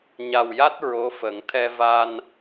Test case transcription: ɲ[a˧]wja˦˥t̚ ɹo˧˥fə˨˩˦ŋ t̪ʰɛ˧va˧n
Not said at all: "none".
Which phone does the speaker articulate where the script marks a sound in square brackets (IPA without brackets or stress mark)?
a˨˩